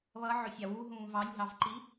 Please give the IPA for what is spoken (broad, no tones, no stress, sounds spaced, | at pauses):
β ʌ ʕ ʊ sʲ ɑ w u ɦ ũː v ɑ nʲ ɦ ɑ v ǃ i